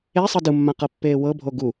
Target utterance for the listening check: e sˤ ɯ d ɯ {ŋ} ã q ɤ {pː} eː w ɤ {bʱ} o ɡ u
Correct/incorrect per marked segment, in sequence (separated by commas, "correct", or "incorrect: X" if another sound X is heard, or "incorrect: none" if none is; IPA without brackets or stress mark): incorrect: mː, correct, correct